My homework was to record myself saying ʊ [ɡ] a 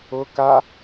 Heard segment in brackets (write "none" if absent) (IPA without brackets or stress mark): k